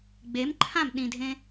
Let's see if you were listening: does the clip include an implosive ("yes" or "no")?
yes